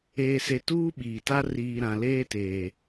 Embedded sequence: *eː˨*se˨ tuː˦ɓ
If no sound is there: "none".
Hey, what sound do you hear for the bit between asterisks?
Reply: eː˨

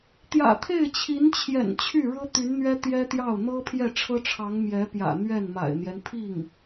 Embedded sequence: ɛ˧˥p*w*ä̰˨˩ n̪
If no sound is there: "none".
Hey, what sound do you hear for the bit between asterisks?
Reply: j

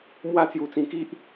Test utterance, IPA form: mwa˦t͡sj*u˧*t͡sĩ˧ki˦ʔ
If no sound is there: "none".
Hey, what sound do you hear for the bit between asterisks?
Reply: u˧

